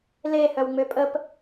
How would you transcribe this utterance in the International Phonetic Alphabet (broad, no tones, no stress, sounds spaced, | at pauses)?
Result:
l e h œ w ŋ͡m ø pʼ ə p